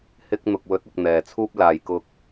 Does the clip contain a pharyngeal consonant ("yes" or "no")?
no